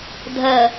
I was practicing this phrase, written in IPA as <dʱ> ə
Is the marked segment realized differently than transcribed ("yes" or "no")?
no